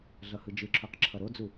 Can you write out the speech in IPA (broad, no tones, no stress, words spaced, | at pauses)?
ɮʌhɯd͡ʒɯǁʰuq ǁʰʌɾod͡zu